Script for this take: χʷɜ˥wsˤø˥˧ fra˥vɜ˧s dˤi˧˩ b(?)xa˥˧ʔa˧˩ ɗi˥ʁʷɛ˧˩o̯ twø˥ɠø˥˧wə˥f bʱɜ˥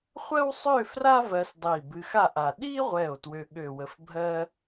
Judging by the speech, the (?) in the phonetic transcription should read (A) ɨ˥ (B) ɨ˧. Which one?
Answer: B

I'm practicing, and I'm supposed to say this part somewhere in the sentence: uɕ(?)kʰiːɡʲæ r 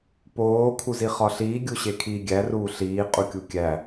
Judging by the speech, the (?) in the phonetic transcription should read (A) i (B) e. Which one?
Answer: B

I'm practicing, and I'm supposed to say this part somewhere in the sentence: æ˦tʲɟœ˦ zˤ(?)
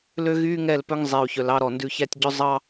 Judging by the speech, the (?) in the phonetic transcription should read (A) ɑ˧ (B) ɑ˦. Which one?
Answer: B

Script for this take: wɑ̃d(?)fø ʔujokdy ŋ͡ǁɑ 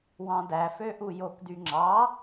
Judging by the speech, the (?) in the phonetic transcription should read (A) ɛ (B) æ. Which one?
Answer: B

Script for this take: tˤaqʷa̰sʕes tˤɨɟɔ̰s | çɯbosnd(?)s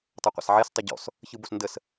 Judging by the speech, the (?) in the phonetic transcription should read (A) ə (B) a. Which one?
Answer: A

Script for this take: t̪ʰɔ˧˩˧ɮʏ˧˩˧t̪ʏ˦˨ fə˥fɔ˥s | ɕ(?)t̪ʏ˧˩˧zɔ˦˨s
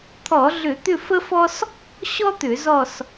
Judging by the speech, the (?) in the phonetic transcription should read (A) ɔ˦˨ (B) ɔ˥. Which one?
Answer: B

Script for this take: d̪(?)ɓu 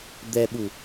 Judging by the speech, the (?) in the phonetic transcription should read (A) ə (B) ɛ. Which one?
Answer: B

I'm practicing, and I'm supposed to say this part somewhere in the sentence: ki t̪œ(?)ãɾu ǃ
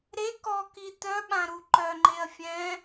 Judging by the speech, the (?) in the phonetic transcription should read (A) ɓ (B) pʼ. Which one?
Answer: A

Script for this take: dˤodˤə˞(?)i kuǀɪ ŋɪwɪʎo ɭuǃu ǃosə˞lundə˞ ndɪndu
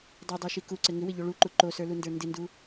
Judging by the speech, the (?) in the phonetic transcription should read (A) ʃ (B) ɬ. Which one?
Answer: A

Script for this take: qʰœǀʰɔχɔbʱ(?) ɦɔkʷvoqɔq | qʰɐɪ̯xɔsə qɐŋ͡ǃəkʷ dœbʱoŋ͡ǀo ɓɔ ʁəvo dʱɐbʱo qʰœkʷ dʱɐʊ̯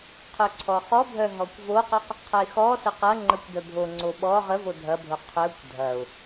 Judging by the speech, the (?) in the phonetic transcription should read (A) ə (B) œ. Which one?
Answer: B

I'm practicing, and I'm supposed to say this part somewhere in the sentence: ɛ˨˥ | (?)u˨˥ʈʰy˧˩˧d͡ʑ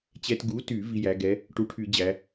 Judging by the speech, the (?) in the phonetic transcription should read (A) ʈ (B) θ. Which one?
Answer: A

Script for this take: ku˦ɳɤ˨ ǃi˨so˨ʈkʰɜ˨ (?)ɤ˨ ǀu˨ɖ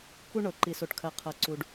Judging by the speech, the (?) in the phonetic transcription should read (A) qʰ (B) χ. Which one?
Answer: A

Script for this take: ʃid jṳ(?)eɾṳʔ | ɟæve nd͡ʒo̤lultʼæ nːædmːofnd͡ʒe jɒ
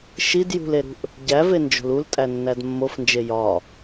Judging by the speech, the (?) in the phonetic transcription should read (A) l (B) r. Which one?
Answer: A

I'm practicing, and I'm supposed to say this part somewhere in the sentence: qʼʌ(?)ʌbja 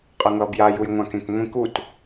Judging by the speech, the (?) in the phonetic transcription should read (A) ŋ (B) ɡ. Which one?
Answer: A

